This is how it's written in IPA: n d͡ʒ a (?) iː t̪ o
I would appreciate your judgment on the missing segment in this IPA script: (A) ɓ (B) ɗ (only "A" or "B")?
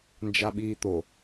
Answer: A